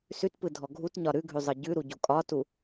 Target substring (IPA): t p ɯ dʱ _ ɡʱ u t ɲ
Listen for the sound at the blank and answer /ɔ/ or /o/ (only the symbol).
ɔ